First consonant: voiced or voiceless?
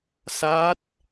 voiceless